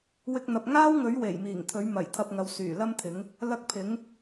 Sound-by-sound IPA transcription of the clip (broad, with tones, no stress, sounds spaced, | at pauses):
w ɪ˧ k̚ n̪ ɐ˨ p̚ ŋ aː˥ w ŋ ɵ˨˥ ɥ w e˨˩ j m iː˨˩ ŋ t̪ʰ ɵ˨˥ ɥ m ɐ˨˩ j t̪ʰ ɐ˧ p̚ ŋ ɐ˨˧ w s yː˨˩ l ɐ˥ m t̪ʰ ɪ˨˥ ŋ | l ɐ˧ k̚ pʰ ɪ˨˥ ŋ